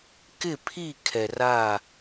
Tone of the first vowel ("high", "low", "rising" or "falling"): falling